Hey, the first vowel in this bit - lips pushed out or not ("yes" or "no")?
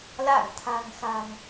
no